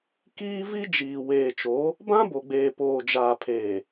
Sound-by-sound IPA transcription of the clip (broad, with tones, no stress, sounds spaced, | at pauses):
k iː˦ v i˦ d͡ʒ iː˨ w eː˨ t͡ʃ o˨˦ | b ã˦ b o˨ ɡ͡b eː˨ p oː˨ d͡ʒ aː˨ pʰ eː˨